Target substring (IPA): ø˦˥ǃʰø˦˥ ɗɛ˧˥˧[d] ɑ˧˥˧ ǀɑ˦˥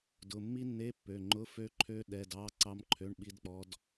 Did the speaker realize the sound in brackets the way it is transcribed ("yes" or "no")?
yes